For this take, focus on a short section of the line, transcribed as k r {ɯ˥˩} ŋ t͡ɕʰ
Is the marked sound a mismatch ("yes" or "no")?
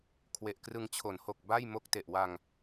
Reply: yes